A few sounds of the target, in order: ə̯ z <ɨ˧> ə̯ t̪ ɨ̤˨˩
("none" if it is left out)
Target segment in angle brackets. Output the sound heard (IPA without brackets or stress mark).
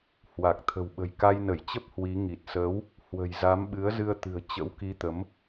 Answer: ɨ˧